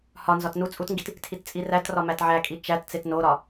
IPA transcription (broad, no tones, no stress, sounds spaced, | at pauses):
h ɒ n z ɒ t n u t͡sʼ u t ŋ ɡ i t | tʰ i t t͡sʼ i r æ t r ɒ m æ t ʕ æ kʼ i t͡ʃ æ t t͡s e t n o ɾ ɒ